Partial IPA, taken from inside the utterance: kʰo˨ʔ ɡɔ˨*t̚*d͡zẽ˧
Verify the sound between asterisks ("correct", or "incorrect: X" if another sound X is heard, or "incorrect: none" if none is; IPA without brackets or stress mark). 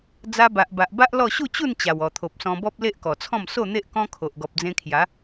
incorrect: p̚